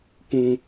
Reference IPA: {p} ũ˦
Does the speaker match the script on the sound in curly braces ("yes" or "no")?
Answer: yes